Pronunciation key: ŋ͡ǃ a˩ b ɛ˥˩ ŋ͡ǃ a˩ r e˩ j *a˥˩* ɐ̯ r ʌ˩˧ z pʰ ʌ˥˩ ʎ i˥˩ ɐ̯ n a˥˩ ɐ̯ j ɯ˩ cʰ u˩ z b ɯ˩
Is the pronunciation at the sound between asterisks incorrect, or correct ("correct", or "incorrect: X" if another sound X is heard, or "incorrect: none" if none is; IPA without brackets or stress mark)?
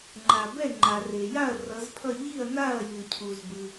correct